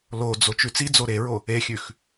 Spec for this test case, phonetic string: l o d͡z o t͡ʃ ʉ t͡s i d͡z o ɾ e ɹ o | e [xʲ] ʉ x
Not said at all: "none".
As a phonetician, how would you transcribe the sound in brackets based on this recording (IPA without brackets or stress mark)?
xʲ